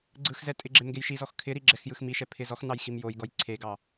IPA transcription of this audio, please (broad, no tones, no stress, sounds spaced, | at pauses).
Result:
ɡ͡ǀ ɯ x z ɛ tʼ ɪ ɡ͡ǁ e m ɡ e j ʃ i z ɔ x kʰ ɪ ɾ i ɡ͡ǁ ɛ x j ɯ x m i ʃ ɛ pʰ ɪ z ɔ x n ɑ j x i m j o j ɡ ɔ j ǀʰ e ɡ ɑ